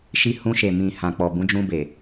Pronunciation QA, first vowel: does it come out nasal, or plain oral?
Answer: oral